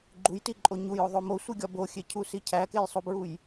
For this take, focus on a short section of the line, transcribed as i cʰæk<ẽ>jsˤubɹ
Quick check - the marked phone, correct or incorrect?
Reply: incorrect